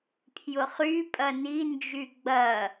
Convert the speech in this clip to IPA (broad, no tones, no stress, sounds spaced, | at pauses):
pʰ j ʊ χ y pʼ ɐ n i n d͡ʒ y ɡ͡b ɐ